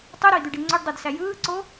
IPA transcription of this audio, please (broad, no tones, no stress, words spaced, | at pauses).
tˤuɾoi̯d̪yɖi ŋ͡ǀøɖdˤødsæ jɯːǀo